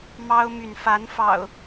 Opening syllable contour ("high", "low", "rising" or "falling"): high